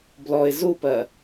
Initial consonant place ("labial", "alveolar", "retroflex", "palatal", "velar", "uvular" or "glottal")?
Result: labial